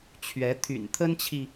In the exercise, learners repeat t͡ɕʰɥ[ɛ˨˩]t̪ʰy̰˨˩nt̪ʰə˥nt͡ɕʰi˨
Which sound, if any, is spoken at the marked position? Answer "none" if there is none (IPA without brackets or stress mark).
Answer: ɛ˧˥